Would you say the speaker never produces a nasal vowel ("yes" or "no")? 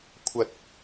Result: yes